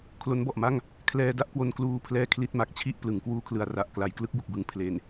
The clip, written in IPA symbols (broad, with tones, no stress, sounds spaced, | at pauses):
kʰ l o˦˥ n b ɔ˨˩ ʔ m a˥˩ ŋ | kʰ l ɛː˧ d a˦˥ ʔ k w o˧ n k l uː˧ pʰ l ɛː˧ kʰ l i˥˩ t̚ m a˨˩ k̚ t͡ɕʰ i˥˩ ʔ p l ɯ˩˦ ŋ k w uː˦˥ kʰ l ɯ˩˦ a̯ r a˨˩ ʔ k l a˦˥ j k l ɯ˦˥ k̚ b u˨˩ k̚ b ɯ˩˦ ŋ pʰ l e˨˩ n